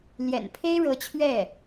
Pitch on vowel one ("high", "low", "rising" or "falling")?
low